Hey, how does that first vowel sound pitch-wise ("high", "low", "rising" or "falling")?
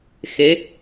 rising